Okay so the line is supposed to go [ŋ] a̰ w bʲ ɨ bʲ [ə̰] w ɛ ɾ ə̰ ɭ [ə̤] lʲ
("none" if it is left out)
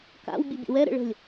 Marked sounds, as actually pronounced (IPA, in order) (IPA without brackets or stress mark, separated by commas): k, ə̰, ə̤